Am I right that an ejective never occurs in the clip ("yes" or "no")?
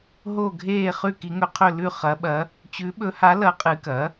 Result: no